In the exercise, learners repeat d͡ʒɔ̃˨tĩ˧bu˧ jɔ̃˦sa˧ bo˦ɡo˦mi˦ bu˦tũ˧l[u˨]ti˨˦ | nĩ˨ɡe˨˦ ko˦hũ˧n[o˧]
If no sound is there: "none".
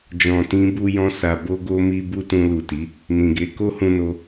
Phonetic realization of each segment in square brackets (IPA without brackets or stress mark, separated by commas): u˨, o˧